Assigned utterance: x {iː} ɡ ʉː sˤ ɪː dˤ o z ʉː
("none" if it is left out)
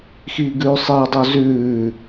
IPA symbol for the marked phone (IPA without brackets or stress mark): iː